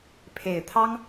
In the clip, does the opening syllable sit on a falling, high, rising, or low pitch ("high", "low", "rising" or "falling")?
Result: low